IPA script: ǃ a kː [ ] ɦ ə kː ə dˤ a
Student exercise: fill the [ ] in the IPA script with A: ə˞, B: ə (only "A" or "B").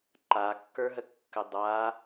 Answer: A